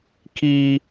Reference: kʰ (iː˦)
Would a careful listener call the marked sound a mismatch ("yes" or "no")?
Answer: no